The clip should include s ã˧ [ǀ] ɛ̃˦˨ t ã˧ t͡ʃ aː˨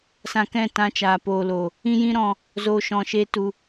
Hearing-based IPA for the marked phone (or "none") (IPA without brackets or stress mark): k